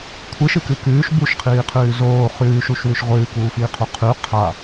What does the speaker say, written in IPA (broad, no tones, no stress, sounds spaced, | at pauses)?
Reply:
kʷʰ ɨ ʃ ɨ k ɨ k ʉː ʃ b u ʃ qʰ iː qʰ ʉː z oː χ ʉː ʃ u ʃ w ʉ ʃ ʁʷ ɨː k uː f iː qʰ u qʰ ʉ qʰ a